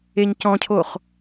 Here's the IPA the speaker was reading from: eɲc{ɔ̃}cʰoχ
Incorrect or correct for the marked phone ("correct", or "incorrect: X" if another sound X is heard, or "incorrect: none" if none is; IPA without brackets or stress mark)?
correct